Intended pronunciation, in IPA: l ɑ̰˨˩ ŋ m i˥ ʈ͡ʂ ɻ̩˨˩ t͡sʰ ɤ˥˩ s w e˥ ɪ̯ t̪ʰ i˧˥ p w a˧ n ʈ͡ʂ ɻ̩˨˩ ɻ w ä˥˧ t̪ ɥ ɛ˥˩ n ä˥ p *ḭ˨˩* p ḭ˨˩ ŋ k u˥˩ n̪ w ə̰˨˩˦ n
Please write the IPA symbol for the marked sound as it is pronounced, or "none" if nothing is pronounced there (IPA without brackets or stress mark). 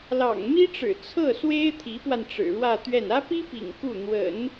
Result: i˥